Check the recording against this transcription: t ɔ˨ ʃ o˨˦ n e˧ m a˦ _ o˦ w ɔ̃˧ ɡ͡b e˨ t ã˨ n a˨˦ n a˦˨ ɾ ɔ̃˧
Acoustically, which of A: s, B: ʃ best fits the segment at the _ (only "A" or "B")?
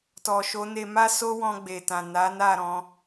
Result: A